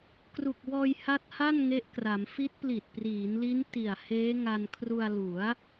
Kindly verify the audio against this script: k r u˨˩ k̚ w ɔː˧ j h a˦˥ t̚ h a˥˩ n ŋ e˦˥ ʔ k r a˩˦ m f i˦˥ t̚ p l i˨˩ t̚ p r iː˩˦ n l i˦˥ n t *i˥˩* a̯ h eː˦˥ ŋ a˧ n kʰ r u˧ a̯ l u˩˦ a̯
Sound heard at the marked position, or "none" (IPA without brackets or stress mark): i˨˩